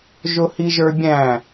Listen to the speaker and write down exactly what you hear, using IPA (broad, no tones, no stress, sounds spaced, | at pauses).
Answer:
ʒ ʊ h i ʒ ə˞ bʲ æ̃